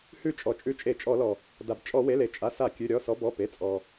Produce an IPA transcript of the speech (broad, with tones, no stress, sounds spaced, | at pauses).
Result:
h ʉ˧˩ t͡ʃʼ ɔ˩ t͡ʃʼ ʉ˧˩ t͡ʃʼ e˧˩˧ t͡ʃʼ ɔ˧˩˧ l ɔ˩ | d a˩ b t͡ʃʼ ɔ˧˩˧ w e˩˧˩ l e˧˩ t͡ʃʼ a˩˧˩ s a˧˩˧ kʲ ʉ˩˧˩ ɾʲ ɔ˩˧˩ s ɔ˨˦ b ɔ˩˧˩ p e˩˧˩ t͡sʼ ɔ˩